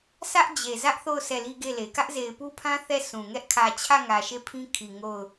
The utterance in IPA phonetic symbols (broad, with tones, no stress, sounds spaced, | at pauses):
sʰ ä˦ ʔ d͡ʑ e˨ z ä˦ ʔ θ o˦˨ ʊ̯ s ɛ˦˨ l i˦ ɡ e˦˨ l e˨ k ä˦ ʔ z e˨ ɪ̯ p u˦ pʰ ã˦ θ ɛ˦˨ s ũ˨ ŋ ɛ˦ ʔ kʰ ä˨ t͡ɕʰ ä˦˨ ŋ ä˨ ʃ e˦˨ pʰ ĩ˦ kʰ i˨ ŋ o˦˨ ʊ̯